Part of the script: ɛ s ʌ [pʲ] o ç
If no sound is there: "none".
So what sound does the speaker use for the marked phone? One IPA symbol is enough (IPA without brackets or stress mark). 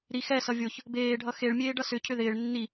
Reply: vʲ